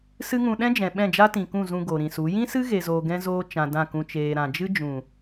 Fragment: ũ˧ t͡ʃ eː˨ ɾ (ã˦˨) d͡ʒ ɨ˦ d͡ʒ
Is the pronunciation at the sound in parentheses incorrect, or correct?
incorrect